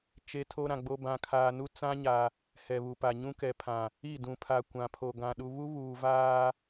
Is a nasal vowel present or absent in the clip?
present